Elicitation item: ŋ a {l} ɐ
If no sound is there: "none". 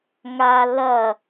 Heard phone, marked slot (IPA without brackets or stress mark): l